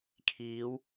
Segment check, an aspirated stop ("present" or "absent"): present